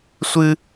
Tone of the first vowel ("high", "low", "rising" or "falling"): high